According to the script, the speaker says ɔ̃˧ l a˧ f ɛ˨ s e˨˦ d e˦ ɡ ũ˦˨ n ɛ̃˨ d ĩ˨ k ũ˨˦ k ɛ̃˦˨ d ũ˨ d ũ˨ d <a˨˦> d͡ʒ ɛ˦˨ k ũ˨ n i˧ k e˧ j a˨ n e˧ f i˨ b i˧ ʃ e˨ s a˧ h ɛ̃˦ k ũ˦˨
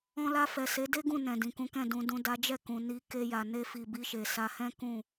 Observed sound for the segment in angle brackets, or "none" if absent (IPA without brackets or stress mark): a˨˦